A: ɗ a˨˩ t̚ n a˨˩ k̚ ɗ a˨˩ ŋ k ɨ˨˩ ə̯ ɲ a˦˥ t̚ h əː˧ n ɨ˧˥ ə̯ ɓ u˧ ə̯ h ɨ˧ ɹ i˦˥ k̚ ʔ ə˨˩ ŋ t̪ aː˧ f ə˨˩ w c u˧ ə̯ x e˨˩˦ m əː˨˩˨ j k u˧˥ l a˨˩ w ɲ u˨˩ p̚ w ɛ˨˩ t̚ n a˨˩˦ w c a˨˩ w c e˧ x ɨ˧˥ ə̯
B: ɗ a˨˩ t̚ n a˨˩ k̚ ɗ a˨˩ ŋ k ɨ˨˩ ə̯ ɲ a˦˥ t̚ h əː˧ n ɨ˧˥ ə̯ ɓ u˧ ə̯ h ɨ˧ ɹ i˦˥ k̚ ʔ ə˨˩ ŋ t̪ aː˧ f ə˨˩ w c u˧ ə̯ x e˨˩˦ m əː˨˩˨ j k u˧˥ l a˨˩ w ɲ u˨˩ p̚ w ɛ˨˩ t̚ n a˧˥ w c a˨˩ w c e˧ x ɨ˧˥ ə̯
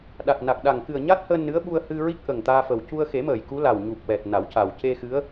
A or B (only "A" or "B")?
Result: A